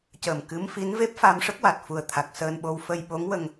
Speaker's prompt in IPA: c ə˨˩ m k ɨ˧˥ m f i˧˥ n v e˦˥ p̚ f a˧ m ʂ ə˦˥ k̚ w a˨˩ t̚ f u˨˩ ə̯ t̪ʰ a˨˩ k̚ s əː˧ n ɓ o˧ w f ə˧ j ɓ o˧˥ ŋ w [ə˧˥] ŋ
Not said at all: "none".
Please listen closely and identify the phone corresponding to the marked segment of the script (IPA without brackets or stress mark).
ə˧